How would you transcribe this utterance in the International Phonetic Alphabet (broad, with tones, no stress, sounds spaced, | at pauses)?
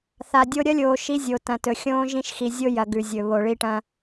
θ a˨ dʲ o˦ ɾʲ ɐ˦ lʲ oː˨ ʃ i˦ zʲ o˨ t ɐ̃˨ t ɵ˨ xʲ õː˦ ʒ ĩ˦ ʃ x i˨ zʲ o˦ j ɐ˨ ɡ ʉ˨ zʲ ɵ˨ β o˨ ɭ i˦ ʈ ɐ̃˦